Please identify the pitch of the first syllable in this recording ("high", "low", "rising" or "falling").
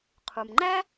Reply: low